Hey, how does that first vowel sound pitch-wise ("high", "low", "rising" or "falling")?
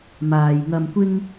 low